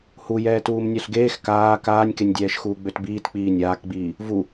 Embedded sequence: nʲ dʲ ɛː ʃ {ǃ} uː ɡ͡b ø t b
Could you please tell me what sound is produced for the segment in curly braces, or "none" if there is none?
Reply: x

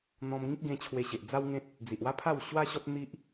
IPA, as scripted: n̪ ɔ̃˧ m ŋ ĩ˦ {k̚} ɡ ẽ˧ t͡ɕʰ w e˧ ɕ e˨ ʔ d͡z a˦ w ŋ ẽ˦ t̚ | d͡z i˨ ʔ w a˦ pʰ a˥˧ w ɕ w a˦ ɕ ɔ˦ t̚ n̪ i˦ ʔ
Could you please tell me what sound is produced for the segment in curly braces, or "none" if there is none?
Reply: k̚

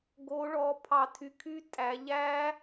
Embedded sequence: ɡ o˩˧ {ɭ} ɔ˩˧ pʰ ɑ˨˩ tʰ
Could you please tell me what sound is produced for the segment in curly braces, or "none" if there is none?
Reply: ɭ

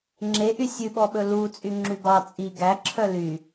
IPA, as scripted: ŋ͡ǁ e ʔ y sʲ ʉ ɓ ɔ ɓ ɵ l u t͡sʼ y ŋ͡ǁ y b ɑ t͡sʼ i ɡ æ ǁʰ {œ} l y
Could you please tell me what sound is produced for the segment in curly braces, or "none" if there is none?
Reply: œ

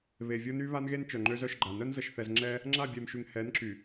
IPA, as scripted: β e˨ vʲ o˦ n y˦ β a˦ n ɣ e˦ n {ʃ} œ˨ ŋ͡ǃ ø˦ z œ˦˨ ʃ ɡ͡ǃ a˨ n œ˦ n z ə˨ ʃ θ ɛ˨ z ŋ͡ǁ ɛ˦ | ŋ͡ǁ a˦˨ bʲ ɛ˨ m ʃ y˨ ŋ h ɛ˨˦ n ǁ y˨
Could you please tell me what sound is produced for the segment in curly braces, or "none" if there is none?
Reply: t͡ʃ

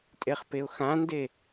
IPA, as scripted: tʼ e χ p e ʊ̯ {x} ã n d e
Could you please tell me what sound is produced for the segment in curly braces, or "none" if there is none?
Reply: x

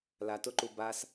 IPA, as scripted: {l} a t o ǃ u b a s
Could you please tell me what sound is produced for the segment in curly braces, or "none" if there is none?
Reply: l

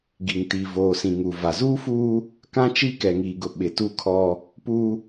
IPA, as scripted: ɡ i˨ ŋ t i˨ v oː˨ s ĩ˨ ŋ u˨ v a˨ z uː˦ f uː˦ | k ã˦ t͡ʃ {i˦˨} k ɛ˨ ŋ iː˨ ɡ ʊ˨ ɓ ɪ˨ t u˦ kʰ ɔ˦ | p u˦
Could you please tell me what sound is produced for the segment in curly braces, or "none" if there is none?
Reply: i˦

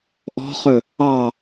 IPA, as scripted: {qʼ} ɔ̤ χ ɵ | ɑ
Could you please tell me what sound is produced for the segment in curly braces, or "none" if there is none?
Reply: ʔ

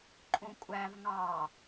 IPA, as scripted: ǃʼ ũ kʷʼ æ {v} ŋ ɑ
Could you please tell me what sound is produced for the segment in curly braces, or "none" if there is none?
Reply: v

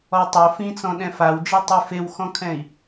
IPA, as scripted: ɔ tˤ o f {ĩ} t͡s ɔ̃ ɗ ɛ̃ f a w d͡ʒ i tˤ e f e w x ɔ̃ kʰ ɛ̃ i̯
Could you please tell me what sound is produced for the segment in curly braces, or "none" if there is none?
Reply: ĩ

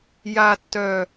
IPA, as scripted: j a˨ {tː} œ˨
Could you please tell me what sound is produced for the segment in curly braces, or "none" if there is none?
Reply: tː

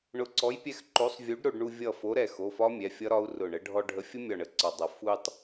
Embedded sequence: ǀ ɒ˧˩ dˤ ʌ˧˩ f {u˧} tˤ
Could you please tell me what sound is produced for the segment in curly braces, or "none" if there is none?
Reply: u˧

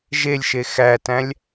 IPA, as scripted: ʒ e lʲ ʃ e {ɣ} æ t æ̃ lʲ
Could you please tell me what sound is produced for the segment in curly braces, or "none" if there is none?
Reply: x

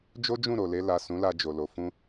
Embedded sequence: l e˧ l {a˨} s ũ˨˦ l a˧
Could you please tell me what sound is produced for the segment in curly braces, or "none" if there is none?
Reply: a˨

